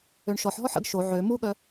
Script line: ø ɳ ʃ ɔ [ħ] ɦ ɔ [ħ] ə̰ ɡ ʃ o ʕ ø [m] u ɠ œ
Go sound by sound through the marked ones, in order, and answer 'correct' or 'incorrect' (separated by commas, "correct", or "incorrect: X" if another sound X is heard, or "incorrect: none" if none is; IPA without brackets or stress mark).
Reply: correct, correct, correct